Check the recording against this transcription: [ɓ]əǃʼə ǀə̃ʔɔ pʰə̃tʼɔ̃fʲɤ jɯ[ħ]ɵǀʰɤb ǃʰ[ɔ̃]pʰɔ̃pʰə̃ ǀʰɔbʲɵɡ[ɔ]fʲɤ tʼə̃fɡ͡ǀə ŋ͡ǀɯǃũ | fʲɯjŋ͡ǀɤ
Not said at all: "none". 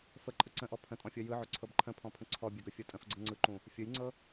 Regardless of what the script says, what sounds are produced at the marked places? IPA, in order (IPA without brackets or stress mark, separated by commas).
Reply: f, ʕ, ə̃, ɵ